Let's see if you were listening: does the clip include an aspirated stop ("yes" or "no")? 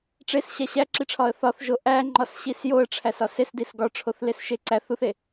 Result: yes